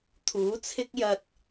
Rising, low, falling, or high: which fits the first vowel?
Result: rising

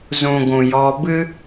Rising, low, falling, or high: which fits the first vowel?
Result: low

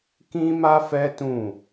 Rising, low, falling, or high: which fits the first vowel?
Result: high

